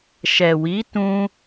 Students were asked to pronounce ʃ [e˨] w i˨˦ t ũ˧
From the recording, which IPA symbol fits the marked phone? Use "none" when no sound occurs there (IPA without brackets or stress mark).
ɛ˨